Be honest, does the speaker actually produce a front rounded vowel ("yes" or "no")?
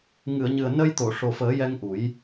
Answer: no